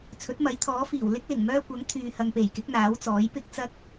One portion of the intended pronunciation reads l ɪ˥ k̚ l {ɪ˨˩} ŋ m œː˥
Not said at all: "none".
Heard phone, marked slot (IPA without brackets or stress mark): ɪ˨˩